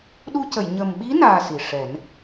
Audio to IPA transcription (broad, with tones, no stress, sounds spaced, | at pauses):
ɗ u˧ c ə˨˩˨ j ɲ ə˨˩ m ɓ i˧˥ n aː˧ s i˨˩ ʂ ɛ˨˩˦ n